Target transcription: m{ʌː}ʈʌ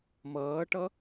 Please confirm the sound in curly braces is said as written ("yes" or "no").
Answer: yes